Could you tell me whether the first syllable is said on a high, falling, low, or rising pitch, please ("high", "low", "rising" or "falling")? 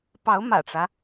rising